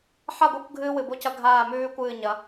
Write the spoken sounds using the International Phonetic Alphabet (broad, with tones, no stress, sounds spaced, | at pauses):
ħ a˦˨ ɡʷ ɨ˦˨ kʷ ɡʱ ɨː˦ w ɨ˨ b o˦ c ɐ˦ ɡʱ aː˦˨ m ʉː˦ kʷ ɨː˦˨ ɲ ɐ˨˦